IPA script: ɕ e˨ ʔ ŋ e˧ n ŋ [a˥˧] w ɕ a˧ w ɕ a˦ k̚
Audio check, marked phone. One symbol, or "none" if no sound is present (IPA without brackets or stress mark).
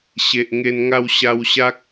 a˧